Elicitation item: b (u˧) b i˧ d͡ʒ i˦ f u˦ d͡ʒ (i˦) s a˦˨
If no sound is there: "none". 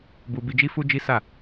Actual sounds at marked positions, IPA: u˧, i˦

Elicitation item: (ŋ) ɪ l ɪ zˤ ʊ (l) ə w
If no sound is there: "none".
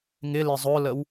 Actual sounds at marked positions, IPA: ŋ, l

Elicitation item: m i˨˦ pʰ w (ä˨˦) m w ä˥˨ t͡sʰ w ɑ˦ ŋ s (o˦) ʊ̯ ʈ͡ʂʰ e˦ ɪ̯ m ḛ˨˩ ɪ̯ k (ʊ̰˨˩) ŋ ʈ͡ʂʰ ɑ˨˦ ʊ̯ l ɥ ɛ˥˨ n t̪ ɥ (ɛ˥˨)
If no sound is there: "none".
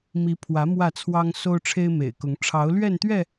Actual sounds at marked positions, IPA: ä˨˦, o˦, ʊ˨˦, ɛ˥˨

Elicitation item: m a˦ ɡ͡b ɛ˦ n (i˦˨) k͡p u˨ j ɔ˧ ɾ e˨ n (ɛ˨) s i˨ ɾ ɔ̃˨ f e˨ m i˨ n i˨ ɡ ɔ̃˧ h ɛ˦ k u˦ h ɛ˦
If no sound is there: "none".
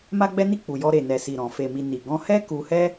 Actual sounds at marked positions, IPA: i˦˨, ɛ˨

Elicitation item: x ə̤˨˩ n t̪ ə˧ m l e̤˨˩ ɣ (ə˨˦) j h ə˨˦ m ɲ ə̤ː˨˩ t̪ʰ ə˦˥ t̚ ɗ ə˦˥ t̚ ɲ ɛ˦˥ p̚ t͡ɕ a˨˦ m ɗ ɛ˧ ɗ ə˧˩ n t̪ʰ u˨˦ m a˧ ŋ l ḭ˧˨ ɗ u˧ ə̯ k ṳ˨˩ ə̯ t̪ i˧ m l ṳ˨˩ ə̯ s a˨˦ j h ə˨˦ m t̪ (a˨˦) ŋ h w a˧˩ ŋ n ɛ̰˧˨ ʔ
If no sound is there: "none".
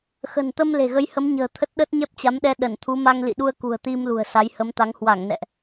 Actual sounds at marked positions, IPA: ə˨˦, a˨˦

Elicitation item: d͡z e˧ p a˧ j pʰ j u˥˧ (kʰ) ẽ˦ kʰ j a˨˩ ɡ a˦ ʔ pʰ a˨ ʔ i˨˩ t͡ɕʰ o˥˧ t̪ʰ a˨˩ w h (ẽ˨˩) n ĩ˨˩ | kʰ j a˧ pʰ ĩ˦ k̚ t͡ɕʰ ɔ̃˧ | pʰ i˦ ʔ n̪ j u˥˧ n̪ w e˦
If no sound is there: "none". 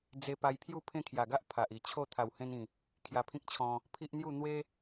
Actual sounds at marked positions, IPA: pʰ, ẽ˧

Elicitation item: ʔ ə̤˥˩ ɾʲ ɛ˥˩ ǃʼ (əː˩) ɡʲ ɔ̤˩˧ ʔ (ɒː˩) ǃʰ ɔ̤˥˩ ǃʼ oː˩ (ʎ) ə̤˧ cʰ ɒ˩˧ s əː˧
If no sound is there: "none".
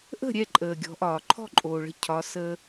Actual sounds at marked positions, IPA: əː˩, ɒː˩, ɭ

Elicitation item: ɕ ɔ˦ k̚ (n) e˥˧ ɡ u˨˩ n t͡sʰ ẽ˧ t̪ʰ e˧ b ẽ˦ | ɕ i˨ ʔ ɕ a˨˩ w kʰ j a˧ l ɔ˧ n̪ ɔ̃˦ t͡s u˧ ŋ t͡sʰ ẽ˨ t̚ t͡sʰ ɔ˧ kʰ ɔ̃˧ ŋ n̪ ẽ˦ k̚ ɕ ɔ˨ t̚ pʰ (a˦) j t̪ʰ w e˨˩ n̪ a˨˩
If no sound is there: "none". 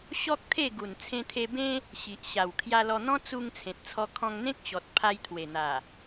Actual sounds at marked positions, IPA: t̪ʰ, a˧

